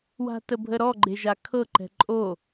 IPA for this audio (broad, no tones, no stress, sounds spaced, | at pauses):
w a̤ t ə bʱ ə ɾ ɔ ɡ͡ǃ e ʒ a kʰ ɤ ǃ ɛ̤ ǃʼ o